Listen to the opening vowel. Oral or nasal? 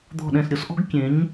oral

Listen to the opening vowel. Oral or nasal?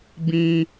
nasal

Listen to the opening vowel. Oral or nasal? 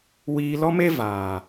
oral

